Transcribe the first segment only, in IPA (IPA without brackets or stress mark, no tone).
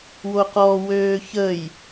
w